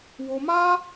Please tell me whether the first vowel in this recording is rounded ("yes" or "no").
yes